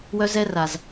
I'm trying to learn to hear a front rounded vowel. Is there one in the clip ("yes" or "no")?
yes